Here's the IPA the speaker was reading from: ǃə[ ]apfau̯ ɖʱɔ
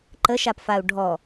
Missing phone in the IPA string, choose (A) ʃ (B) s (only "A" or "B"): A